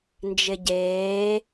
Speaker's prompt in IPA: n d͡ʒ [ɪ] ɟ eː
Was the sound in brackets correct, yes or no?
yes